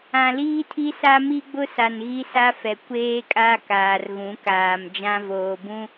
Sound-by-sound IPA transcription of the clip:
ã˨liː˦tʰi˦sa˦ mi˦ɡ͡bʊ˦sa˨n ɣi˦sa˦fɛ˨ kʷeː˦kʼa˦ kaː˨rɣũ˨˦kaː˨m d͡ʒã˦voː˨bũ˦

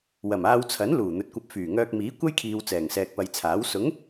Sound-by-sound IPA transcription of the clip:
wɐ˨˩maː˧wt͡sʰɐ˨˥n luː˨˩n̪ɵ˨t̚kʷɐ˧p̚ fyː˨˩ŋœː˧k̚miː˨˥ kʷɐ˥jkʰiː˨w t͡sɛː˨˩ŋsɛː˨k̚pɐ˨jt͡sʰaː˨˥w sʊ˨˥ŋ

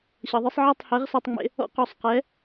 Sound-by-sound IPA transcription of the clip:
ɕɤ˩˥ðˤɯ˥sˤ ʕɛ˥˩tˤhɛ˩˥ʁ sɔ˧tˤŋ͡mḛ˧ | ɔ̰˥qɔ˩˥sˤqɛ˩˥

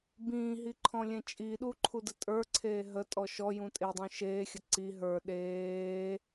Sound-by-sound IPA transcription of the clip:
bĩːɦiǃʰɔ̃lʲẽ t͡ʃʼiɗuǃʰudə tʼə˞ǀʰeː ɦətʼɔ ʃɔjũ tʼedˤũ ʃeːxʲə ǀi ɦə˞ ɗeː

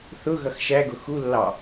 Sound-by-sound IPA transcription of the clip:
θʊ ɣʌxʃæɡʊ xulːɑ

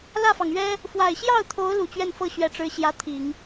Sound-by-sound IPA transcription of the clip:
lä˥˩fɑ˩ŋɥɛ˥ | fwa˨˩ɪ̯ɕjɑ˥˩ʊ̯t̪ʰo˧˥ʊ̯ lu˨˩t͡ɕɥɛ˥˧nfɤ˥˩ ɕɥɛ˧˥ʈ͡ʂɻ̩˧˥ ɕjä˧˥t̪ʰi˨˩˦ŋ

